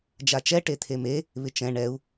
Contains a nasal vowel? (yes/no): yes